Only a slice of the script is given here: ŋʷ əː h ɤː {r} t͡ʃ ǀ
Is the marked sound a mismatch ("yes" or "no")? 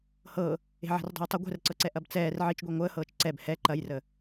yes